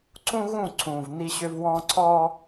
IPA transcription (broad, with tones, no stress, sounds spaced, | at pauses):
ǀ ũ˦ ɣ ũ˦˨ ǀʰ ũ˨ v n i˦ ɕ ʏ˦ v w ɔ̃˦ ǀʰ ɔ˦